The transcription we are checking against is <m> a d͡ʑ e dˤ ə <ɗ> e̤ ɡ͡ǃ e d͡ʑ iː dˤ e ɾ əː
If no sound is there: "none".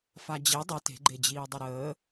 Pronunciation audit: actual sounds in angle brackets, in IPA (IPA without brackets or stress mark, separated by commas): f, t